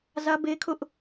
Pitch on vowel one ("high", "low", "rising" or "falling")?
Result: high